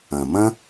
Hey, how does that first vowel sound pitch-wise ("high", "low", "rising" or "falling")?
low